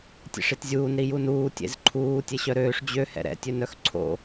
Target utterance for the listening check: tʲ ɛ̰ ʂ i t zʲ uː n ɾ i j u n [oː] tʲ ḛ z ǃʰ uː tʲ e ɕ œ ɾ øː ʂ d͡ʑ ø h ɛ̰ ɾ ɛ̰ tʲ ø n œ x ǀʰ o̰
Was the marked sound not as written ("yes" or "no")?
yes